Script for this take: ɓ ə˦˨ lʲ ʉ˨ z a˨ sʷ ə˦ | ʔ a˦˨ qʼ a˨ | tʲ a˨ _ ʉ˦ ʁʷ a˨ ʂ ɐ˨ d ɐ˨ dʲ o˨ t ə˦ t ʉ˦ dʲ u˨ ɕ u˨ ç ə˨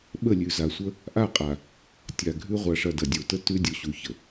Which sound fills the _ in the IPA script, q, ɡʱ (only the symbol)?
ɡʱ